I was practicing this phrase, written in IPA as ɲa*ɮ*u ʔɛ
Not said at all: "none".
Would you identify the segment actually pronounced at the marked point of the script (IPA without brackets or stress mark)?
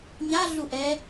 ɮ